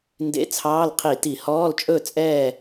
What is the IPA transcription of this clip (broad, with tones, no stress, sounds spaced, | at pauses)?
n d ḛ˧˥˧ t͡sʰ ɑː˧˥˧ l qʰ i˧˩˧ t i˧˩˧ h ɔː˧˥˧ l t͡ʃʼ ɵ˥˨ t͡sʼ ɛː˥˨